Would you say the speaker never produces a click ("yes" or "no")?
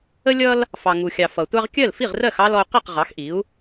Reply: yes